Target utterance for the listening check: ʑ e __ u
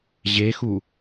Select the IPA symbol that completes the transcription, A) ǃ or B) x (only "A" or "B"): B